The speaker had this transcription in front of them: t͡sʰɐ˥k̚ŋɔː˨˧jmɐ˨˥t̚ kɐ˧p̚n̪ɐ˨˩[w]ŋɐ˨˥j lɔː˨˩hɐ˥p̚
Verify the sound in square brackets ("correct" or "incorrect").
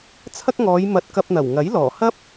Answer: correct